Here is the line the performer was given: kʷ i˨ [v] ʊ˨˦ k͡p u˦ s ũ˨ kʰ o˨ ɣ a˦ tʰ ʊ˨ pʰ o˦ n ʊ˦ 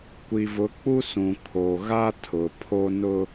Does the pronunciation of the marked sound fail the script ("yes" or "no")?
no